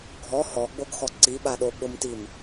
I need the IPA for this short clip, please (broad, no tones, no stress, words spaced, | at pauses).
ɡʱɔ hɔɡ͡boɡxɔ ǀiɓaɗo ɓʊmtim